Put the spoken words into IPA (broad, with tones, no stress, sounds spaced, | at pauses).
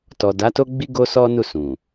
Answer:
t ɔ˨ d a˨˦ t o˦ ɡ͡b i˦ ɡ o˦ s ɔ˦ n u˦˨ s ũ˨